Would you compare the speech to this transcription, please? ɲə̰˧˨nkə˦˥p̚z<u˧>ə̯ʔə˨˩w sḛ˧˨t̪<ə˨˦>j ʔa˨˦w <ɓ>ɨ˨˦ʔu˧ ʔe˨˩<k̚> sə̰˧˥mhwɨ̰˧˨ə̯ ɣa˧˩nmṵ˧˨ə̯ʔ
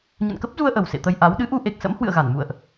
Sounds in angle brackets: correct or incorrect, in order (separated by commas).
correct, incorrect, incorrect, correct